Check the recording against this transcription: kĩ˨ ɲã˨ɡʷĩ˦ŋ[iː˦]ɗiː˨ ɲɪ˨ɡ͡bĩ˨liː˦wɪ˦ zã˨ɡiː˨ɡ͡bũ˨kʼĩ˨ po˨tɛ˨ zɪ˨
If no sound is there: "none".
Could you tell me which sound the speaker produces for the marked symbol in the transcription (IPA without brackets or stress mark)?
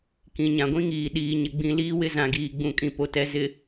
iː˨